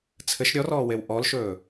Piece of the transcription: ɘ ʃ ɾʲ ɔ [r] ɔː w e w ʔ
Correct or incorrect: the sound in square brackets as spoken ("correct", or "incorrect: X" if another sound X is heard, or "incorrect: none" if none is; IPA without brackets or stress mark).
correct